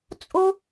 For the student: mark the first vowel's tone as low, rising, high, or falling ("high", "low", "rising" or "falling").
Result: high